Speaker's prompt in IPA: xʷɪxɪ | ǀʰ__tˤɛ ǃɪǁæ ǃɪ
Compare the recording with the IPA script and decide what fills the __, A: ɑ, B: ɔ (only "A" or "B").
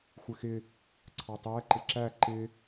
A